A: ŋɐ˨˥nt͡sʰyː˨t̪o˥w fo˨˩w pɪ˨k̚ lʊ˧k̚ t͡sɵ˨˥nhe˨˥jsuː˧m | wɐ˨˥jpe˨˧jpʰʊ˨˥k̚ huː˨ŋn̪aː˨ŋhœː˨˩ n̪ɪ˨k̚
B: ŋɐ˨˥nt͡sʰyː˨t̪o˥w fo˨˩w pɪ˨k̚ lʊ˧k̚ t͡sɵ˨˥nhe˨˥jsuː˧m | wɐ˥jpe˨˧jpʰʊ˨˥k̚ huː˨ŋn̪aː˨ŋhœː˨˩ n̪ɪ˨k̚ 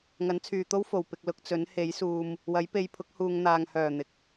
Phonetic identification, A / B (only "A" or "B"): A